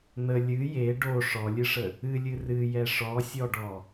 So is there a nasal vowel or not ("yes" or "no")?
no